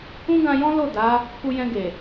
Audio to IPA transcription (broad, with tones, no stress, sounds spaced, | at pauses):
ũ˦ ɡ ã˧ j ɔ̃˦ l o˦˨ d a˨˦ | k u˧ j ɛ̃˧ ɡ e˨